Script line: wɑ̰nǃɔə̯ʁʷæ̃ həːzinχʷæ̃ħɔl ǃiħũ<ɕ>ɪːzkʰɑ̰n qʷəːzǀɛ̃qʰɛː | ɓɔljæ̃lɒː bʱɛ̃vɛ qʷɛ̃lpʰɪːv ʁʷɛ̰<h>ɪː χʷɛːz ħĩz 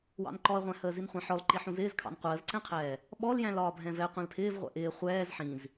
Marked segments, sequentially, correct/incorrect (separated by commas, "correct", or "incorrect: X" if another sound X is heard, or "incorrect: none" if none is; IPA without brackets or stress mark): incorrect: z, incorrect: ʔ